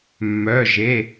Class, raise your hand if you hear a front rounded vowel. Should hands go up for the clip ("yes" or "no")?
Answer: yes